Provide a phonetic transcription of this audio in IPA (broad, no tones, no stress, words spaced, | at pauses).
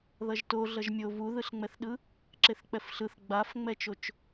ðʌʒto ɮʌʒmʲo vuðɯɬŋ͡mɛθɗɯ | ǁeθk͡pɛfɬɯθ ɡ͡bafŋ͡mɛt͡ʃot͡ʃ